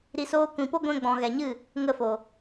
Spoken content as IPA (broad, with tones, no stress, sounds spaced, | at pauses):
ɾ i˧ s oː˦ kʷ ĩ˧ p o˦ ɡʷ ɛ̃˧ ɡ͡b ɔ̃˨ ɣ ɛ˨ ɲ ɨ˦˨ | ŋ ə˦˨ f o˨